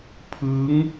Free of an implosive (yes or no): yes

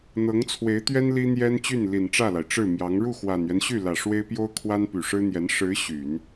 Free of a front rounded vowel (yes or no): no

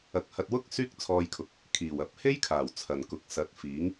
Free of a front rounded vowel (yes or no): no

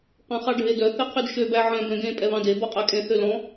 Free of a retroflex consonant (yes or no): no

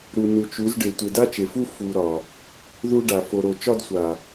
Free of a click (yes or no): yes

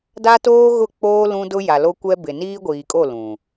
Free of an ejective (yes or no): no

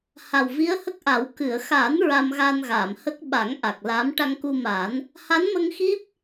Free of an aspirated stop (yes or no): yes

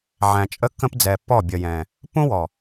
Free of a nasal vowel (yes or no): no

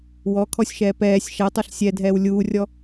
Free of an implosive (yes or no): yes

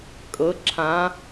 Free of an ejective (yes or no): no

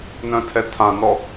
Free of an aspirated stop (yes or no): no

